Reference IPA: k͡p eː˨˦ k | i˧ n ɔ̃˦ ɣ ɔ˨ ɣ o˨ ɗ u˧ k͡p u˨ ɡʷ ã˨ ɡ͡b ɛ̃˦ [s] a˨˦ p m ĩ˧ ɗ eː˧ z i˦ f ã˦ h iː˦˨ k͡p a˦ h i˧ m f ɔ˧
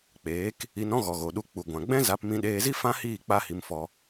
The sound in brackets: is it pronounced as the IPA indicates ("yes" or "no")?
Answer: no